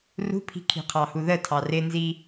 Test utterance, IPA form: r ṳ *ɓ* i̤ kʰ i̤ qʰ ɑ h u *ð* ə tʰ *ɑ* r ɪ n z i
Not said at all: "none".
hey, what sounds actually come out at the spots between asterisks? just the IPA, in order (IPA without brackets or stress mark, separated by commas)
pʰ, ð, ɑ